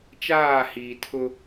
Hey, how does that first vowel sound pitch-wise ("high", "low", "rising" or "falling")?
falling